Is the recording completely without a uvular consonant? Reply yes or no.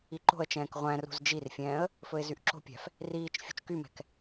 no